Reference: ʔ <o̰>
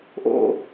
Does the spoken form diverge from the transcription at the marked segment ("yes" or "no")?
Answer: no